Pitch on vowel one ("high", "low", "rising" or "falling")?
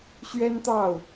high